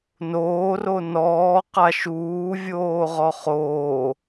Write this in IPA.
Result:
n oː r o n ɔː q a ʃ uː vʲ oː ʁ ɔ χ oː

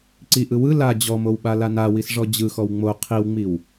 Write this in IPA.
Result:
ǀ i ʔ ɯ w ɯ l a d͡ʑ ɔ m o w ɓ a l a n a w i s ʐ ɔ d͡ʑ ɯ x ɔ w ŋ͡m o qʰ i w ŋ͡m i w

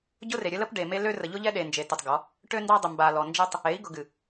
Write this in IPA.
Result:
ɟ ʊ˦ r e˨ ɾʲ ə˦ l ə˦ p ɖ e˨ m e˦ l ø˦ r ə˨ ʎ ʊ˦ ʎ ɛ˦ ɗ e˨ n d͡ʒ e˨ t ʊ˨ tˤ ɡ ɔ˨˦ | ʈ ø˦ n d ɑ˦ dˤ ʊ˨ m b a˨ l ɔ˨ n d͡ʒ ɛ˦ tˤ | e˨˦ i̯ ɡ ʊ˨ ɡ ɨ˨

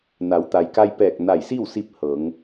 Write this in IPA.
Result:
n a˩˧ w t̪ a˩ j k a˧ j p ɛː˧˩ k̚ n a˧˩ j s i˥˨ w s i˧ p̚ h ɤː˩˧ ŋ

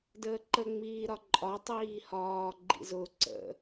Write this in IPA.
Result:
d əː ǃ ə ŋ͡m iː ɾ ɒ ǃʼ ɒ tˤ iː h ɒː ɡ͡ǃ ḭ z ʊ ǀ ə̰

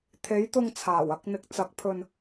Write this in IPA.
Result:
t̪ʰ e˨˥ j t̪ ʊ˧ ŋ t͡sʰ aː˨˩ w ɐ˧ k̚ n̪ ɪ˨ k̚ t͡s ɐ˨˥ k̚ pʰ ɵ˧ n

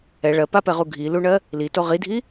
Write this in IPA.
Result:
ɛ ɭ ɜ p a p ɛ ʁ u ɡʱ i l u ɳ ɜ | l i t o ʁ i dʱ i

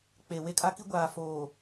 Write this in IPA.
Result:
k͡p e˨ w e˦ kʼ a˦ k i˦ ɡʷ aː˨ f oː˨

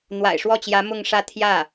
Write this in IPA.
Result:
n̪ w a̰˨˩ ɪ̯ ʂ w ɔ˥˩ t͡ɕ j ä˧˥ m ʊ˥˧ ŋ ʂ ä˥˧ t̪ʰ j ä˥˩

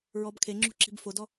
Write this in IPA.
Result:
ɹ ɔ b kʰ e ŋ͡ǁ ṳ ǁ i̤ b f o d ɔ

